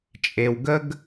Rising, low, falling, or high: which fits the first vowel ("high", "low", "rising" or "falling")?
low